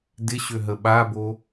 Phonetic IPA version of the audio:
d ɪ ɕ ø ɦ ə ɓ a b o

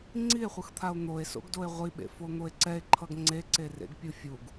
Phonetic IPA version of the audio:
ŋ͡ǀ i e̯ χʷ ɯ x t̪ʰ a o̯ n̪ o e̯ s o̰ ɡ d o e̯ ʁʷ i ɓ ḛ f o n̪ o e̯ ǀ ɛ e̯ ǃʰ ʌ ɡ ŋ͡ǀ e ǀ e r ḛ ɡ pʲ ɯ fʲ u ɡ

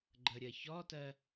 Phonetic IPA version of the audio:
ɡ͡ǃ ə ɾʲ ɜ ç ɔ t ɜ

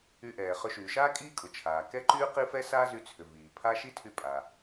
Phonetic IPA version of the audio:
y˧ ʔ ɛː˩ χ ʏ˧ ʃ yː˩ ʃ aː˥ kʼ iː˥ kʼ ʊ˩ t͡ʃʰ aː˩ k ɛ˥ ǃ yː˥ q i˥ f ɛ˥ s aː˥ z y˧ t͡sʰ ʏ˩ v iː˩ pʰ a˥ ʃ i˥ tʰ y˧ pʼ a˩

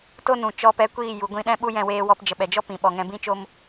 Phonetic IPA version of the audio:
t o˦ n ũ˨ t͡ʃ ɔ˧ p ɛ˧ kʷ iː˦˨ j u˨ ɡʷ ĩ˦˨ ɗ ɛ̃˦ ɓ u˦ j ɛ̃˧ w eː˧ w ɔ˧ p d͡ʒ ə˨ ɓ ɛ˨ d͡ʒ ɔ˦ p ĩ˨ ɓ ɔ˨ ŋ ɛ̃˧ b ĩ˦ t͡ʃ o˦ m

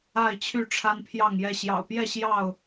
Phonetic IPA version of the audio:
a˥˨ ɪ̯ t͡ɕʰ y˥˨ ʈ͡ʂʰ a˦ n pʰ j ɑ˥˨ ŋ j ɛ˥˨ ɕ j ɑ̰˨˩ ʊ̯ p j ɛ˥˨ ɕ j ɑ˥˨ ʊ̯

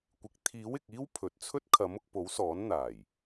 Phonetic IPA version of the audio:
kʷ ɪ˨˥ k̚ t̪ʰ iː˨˥ w ɪ˨ k̚ iː˥ w pʰ ɵ˨ t̚ t͡sʰ ɵ˥ t̚ kʰ ɐ˨˥ m ʊ˧ k̚ p o˨˥ w s ɔː˨˥ n n̪ aː˨˩ j

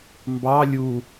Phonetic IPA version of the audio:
m b ɑ lʲ u

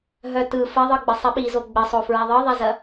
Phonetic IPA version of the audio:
ɦ œ t ɯ f ɘ ðˤ ɯ ɡ͡b ɘ sˤ i ɓ i z o ɡ͡b ɘ sˤ o f ɹ ɛ ðˤ ɯ ðˤ ɛ z ɐ

